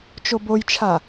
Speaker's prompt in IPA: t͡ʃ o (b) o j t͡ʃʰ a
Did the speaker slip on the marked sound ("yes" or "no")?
no